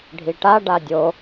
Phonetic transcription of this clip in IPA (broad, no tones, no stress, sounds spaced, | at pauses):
ɖʱ i ʈ a ɖ a dʲ o